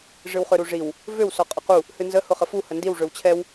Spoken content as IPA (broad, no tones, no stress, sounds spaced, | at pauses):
ʐ ɨ w χ ø ɾ u ʐ i w | v ø w s ɔ qʼ ʊ q u | h ɨ n z ə h ʊ χ ə f u h ə n d i w ʐ ø w t͡ɕʰ ɛ w